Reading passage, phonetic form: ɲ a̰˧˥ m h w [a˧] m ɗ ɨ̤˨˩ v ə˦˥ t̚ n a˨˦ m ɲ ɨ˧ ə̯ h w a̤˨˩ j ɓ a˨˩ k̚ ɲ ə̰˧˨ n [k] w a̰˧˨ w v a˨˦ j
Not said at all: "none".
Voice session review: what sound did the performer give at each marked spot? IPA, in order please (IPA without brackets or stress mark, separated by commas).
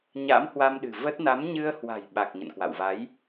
a˧, k